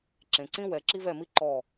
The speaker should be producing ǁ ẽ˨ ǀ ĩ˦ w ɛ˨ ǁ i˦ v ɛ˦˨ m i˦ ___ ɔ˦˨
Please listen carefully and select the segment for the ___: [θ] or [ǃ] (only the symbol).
ǃ